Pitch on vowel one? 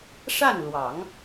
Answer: falling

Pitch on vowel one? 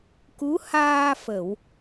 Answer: rising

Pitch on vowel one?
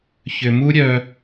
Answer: low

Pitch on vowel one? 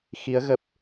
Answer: rising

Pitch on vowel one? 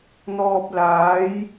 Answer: low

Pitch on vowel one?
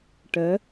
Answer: rising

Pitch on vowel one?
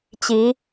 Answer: rising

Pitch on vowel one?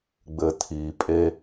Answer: low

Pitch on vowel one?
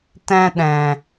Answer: high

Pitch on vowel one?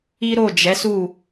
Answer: high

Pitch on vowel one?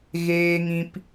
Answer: high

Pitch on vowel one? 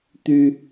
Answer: high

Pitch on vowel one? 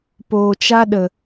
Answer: low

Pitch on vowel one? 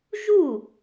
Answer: falling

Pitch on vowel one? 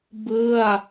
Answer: falling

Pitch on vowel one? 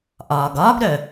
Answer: low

